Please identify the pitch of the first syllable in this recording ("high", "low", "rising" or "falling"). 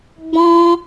high